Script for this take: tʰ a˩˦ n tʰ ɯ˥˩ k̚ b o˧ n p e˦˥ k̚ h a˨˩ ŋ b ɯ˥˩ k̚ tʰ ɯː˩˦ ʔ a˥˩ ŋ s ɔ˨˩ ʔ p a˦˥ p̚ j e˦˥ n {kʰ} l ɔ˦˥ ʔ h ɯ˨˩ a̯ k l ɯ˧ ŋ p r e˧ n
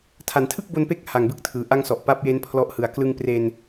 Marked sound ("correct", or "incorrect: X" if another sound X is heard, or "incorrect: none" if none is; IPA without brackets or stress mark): incorrect: pʰ